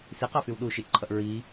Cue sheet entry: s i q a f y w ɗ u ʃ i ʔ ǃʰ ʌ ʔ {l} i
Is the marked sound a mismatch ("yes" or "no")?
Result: yes